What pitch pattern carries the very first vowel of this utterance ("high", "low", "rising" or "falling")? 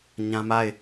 high